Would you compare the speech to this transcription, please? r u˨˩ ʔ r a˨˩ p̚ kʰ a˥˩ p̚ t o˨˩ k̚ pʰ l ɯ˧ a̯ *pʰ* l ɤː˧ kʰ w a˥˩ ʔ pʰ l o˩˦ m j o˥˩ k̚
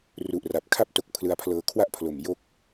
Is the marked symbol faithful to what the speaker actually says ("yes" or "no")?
yes